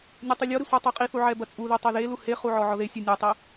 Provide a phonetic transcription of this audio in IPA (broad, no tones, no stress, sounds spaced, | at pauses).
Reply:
nʲ ɐ tˤ u lʲ ɔ ɾ i sʷ ɛ tˤ i qʼ i θ u ʕ ɛ b ɐ t͡sʼ u ð i tˤ ɐ ð e l u h e χ u ʕ ɔ ʕ ɔ ð e sʲ u nʲ ɛ tˤ i